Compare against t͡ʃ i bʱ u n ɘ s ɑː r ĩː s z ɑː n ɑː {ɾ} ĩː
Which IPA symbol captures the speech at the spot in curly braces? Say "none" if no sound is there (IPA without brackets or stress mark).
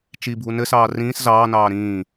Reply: ɾ